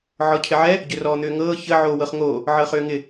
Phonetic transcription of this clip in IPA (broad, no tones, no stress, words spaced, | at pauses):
ʕɔcʰɪʕɛ | ɟʏrɔːn̪ʏːŋɤː çə ʕoːwɤχŋoː | ʕɤχʏːŋɪ